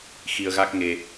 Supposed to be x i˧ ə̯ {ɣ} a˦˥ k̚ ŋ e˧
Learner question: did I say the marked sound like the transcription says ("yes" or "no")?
yes